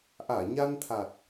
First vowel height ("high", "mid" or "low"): low